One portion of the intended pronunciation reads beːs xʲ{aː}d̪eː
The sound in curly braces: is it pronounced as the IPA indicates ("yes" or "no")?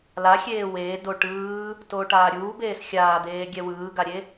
yes